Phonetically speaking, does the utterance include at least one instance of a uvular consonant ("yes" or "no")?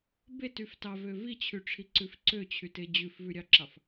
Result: no